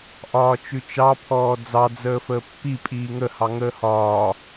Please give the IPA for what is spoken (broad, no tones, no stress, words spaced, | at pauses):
ʔɒːt͡ʃʉt͡ʃɑ pʰɔːd͡zɑ d͡zəːfəːpːi pʼiːŋə hɑŋəːhɒː